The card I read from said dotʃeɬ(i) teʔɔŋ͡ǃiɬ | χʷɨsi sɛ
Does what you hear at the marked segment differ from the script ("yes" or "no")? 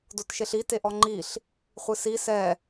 no